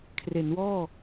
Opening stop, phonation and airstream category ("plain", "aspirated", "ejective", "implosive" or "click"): aspirated